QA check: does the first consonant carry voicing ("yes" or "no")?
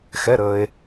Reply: no